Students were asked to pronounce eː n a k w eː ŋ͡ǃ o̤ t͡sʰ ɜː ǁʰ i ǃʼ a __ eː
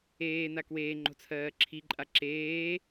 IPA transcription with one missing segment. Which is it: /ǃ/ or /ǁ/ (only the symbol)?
ǁ